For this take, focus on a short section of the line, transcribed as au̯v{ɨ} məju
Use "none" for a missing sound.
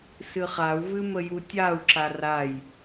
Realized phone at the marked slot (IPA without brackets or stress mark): ɨ